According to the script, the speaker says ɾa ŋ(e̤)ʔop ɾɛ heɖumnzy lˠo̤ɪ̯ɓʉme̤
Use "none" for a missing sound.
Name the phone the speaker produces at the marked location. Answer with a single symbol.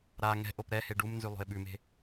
ɛ̤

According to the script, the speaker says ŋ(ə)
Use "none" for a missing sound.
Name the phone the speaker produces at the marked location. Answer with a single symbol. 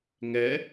ɛ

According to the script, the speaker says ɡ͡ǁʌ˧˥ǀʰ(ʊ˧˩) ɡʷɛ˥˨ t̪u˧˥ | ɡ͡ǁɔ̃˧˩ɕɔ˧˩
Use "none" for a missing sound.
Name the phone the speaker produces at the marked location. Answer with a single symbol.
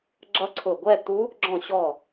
ʊ˧˩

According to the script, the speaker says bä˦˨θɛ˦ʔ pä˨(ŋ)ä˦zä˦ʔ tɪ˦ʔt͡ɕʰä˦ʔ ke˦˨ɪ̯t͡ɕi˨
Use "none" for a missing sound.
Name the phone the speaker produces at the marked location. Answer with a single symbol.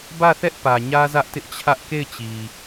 ɲ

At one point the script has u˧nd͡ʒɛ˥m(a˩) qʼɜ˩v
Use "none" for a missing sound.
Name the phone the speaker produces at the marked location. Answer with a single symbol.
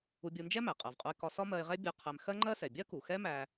æ˩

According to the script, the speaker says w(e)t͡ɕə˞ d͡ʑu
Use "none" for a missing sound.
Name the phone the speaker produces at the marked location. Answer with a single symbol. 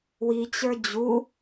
i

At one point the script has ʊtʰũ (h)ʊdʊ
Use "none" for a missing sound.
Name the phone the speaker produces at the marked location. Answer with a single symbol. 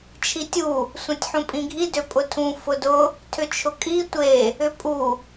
f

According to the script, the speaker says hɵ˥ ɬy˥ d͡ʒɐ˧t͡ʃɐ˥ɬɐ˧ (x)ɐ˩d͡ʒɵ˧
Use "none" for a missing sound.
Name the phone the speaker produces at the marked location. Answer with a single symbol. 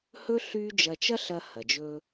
h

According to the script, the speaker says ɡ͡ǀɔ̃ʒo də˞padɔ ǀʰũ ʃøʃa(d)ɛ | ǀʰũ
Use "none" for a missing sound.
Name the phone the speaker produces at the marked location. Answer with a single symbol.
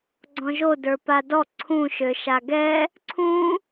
ɡ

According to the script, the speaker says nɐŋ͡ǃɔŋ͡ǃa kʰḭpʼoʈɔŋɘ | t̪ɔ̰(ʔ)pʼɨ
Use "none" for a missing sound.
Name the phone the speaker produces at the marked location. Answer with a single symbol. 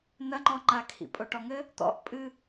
ʔ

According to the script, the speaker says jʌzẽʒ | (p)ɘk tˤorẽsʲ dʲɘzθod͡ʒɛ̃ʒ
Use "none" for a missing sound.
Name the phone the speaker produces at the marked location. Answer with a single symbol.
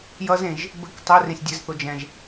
b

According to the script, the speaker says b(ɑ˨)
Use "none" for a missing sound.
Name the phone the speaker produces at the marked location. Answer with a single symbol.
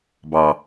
ɑ˨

